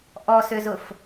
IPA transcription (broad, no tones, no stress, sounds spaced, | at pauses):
ʔ ɔ s ʏ z ʊ f